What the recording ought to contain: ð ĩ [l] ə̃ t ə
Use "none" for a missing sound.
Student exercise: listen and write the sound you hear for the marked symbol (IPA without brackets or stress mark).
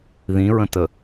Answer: ɹ